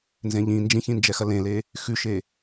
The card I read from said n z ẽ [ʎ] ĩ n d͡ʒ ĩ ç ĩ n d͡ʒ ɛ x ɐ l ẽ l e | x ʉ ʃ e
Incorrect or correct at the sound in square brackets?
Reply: correct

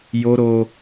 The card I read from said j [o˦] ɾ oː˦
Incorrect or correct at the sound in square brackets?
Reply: correct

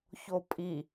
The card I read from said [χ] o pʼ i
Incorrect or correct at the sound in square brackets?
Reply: incorrect: ç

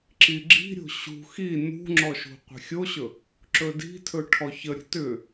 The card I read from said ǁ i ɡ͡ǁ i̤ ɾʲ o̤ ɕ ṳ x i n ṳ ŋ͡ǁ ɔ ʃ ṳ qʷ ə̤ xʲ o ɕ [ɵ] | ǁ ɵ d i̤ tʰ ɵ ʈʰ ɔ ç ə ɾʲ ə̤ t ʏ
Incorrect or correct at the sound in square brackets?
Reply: correct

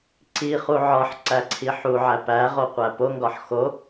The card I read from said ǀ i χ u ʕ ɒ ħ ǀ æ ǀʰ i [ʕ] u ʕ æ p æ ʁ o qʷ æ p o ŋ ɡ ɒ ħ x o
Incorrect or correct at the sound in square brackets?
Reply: incorrect: ħ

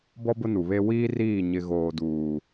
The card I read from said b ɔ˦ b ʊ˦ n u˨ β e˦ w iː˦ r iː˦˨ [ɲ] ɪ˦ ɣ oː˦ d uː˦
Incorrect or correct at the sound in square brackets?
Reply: correct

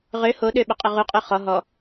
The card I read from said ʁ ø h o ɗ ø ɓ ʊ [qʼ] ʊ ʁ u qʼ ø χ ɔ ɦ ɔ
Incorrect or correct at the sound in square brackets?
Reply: correct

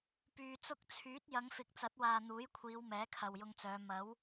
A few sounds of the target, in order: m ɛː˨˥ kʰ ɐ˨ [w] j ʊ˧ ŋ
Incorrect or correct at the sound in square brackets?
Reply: correct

